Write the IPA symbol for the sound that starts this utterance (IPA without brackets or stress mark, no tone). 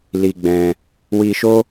l